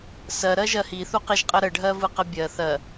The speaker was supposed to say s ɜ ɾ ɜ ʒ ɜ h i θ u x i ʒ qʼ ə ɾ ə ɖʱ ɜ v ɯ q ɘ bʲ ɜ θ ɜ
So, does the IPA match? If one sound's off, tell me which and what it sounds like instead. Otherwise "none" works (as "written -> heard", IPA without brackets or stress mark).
x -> q